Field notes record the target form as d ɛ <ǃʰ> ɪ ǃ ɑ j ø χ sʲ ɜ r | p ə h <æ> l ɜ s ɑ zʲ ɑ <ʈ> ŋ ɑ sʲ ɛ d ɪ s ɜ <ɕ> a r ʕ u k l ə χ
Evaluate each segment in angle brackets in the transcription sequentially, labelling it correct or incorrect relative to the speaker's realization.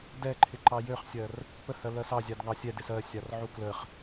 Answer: correct, incorrect: ɜ, incorrect: d, incorrect: sʲ

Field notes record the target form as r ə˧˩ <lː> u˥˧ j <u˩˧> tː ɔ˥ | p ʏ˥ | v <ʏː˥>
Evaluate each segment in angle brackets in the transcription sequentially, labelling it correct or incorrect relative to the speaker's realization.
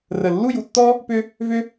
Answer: correct, correct, incorrect: ʏ˥

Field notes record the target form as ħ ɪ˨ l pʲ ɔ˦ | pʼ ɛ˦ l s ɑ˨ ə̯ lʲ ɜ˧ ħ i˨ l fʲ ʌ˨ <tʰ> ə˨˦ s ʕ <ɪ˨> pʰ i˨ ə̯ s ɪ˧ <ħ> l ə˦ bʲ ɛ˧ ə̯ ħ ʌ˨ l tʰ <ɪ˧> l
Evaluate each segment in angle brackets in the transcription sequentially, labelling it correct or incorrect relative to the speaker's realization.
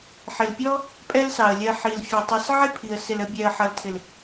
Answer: incorrect: tˤ, incorrect: ɪ˦, incorrect: none, incorrect: ɪ˨

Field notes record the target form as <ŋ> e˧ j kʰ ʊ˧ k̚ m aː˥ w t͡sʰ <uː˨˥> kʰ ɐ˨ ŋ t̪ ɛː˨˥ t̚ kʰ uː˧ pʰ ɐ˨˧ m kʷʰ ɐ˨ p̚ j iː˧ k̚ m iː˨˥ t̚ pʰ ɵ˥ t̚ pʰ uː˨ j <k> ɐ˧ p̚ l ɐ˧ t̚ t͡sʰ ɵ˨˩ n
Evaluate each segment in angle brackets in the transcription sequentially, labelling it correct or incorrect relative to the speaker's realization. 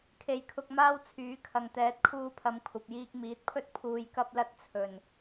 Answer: incorrect: kʰ, incorrect: yː˨˥, correct

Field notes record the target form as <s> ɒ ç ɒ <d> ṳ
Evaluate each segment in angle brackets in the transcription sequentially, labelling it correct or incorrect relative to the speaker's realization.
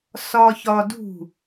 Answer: correct, correct

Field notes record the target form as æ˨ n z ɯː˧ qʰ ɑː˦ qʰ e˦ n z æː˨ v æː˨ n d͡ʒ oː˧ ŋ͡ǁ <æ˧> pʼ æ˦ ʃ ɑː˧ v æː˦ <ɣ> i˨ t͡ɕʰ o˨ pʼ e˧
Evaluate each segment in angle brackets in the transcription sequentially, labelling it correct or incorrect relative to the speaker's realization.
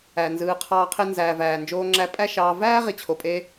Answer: correct, incorrect: ʁ

